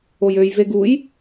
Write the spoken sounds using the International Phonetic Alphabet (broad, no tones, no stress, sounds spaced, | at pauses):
o j ø j v e ɡ u j